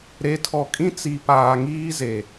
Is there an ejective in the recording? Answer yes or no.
yes